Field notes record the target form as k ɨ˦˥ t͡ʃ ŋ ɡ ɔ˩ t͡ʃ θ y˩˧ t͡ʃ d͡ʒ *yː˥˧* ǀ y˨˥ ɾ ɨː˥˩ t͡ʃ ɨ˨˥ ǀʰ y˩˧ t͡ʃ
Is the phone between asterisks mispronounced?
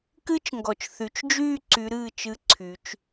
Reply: no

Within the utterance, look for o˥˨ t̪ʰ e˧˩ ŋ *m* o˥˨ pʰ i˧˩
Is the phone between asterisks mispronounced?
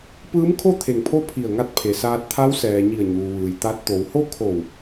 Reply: yes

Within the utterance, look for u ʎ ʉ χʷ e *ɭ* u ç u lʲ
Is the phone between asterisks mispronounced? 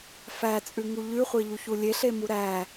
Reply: yes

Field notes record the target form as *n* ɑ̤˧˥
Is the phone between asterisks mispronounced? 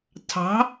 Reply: yes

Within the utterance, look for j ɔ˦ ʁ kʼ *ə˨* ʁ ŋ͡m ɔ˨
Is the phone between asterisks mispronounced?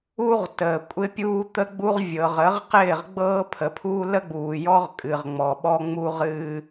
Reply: yes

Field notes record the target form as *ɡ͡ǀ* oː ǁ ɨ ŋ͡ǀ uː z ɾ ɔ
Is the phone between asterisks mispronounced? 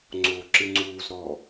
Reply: yes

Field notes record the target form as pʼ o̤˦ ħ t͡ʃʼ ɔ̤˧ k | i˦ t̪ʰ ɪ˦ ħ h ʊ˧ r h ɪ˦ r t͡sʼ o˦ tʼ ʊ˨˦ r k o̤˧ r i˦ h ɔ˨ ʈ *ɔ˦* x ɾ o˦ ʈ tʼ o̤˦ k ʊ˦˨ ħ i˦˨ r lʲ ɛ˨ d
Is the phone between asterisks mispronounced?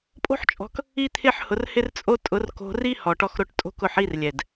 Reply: no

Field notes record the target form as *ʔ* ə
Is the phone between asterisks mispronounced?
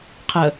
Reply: yes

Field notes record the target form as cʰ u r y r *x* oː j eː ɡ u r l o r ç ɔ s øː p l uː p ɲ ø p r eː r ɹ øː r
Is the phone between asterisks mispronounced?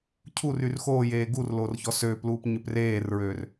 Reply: no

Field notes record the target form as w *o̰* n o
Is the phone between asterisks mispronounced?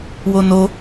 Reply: yes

